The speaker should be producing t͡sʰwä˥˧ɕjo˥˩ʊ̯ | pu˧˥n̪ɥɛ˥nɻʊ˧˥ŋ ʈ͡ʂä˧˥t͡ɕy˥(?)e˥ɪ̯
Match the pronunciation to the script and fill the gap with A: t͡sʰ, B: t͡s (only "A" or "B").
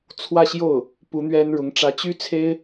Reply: A